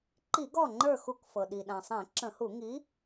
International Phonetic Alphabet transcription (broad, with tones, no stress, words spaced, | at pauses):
ǃi˧˩˧ɡɔ˧˩ŋ͡ǃə˞˧˩xu˧˩˧k fɤ˩ɗi˩ɗã˩sˤẽ˧˩˧ ǁə̃˧˩˧hu˧˩˧ŋi˨˥